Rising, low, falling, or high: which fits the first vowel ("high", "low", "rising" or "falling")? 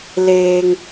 low